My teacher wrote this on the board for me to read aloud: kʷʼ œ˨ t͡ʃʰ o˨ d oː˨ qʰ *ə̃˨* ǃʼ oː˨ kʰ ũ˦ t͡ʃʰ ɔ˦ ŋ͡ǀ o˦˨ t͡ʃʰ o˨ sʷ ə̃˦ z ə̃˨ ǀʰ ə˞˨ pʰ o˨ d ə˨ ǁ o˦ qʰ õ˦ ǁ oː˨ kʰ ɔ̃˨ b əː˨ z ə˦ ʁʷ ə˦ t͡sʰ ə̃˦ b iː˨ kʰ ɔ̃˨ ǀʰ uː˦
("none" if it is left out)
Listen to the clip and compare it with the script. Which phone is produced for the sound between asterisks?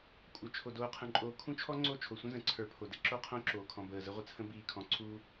ə̃˨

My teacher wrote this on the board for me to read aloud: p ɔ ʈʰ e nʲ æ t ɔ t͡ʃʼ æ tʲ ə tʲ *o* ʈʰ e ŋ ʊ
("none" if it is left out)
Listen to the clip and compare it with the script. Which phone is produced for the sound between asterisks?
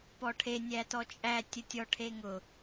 ɔ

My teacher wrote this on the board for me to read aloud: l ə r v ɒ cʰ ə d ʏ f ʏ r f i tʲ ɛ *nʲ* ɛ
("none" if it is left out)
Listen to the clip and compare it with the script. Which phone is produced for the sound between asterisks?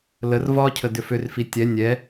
nʲ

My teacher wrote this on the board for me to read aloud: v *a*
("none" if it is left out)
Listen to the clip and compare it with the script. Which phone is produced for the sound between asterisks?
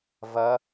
ʌ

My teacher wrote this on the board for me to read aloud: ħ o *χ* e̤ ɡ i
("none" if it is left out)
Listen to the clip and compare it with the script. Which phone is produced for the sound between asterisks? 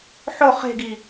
χ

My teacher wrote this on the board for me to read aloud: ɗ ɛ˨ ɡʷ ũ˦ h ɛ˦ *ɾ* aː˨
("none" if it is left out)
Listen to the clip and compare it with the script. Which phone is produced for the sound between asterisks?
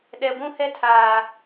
tʰ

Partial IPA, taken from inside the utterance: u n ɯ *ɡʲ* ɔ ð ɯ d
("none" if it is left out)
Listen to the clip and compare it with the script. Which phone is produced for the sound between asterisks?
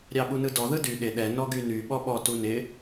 d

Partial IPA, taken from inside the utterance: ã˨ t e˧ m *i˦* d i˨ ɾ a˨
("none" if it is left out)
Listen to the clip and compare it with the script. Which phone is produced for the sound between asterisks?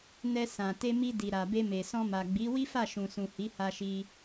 i˧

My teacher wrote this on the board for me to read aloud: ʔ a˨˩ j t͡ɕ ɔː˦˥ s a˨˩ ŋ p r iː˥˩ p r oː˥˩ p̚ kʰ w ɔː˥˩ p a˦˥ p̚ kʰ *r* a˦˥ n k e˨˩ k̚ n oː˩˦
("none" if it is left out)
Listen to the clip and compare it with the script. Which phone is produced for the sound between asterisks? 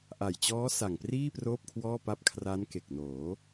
r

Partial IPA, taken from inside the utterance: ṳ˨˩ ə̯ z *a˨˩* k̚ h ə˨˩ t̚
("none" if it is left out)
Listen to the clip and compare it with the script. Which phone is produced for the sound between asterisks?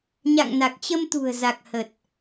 a˨˩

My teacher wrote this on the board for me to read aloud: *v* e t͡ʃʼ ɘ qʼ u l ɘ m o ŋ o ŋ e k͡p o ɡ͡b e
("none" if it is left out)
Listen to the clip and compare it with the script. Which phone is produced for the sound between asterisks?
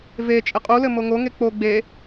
v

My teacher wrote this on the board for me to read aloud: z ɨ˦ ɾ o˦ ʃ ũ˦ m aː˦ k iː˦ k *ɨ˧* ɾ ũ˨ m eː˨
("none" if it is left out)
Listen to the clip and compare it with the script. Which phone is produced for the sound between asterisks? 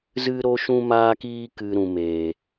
ɨ˧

